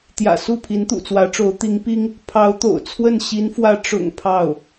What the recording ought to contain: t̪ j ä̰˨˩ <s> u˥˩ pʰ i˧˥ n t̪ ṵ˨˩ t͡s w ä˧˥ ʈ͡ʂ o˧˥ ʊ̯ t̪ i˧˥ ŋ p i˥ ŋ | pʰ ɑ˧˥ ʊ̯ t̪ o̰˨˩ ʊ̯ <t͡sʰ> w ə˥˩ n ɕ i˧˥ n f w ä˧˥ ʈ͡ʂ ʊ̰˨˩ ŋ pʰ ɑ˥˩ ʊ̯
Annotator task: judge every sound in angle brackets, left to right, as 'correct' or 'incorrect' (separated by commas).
correct, correct